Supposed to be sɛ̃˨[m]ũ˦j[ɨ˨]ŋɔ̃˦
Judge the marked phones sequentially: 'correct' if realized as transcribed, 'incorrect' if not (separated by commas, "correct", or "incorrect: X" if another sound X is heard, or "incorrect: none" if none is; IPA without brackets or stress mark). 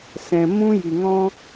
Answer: correct, incorrect: i˨